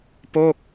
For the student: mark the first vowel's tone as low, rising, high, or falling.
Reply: falling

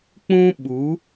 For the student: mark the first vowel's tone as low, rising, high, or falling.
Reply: high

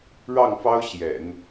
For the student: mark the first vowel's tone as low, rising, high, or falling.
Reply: falling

